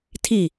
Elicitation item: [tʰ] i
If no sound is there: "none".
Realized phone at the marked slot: tʰ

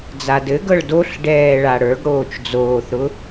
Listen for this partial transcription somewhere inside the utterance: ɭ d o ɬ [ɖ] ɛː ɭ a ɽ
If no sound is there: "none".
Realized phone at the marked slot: ɖ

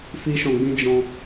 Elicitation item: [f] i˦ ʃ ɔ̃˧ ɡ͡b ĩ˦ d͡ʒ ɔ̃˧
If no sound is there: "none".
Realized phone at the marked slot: f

